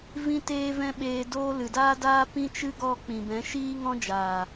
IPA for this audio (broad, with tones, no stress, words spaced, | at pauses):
vĩ˦teː˦vɛ̃˦ɓeː˧ doː˦ lɨ˨daː˦daː˦ pĩ˦t͡ʃɨ˦ɡɔ˦˨ k͡pĩ˨bɛ̃˨˦ ʃiː˦ ŋɔ̃˦d͡ʒaː˨